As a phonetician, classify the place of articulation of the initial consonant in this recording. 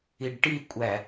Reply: retroflex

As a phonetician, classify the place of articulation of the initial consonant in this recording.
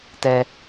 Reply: alveolar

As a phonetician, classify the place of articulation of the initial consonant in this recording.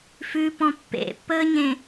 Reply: labial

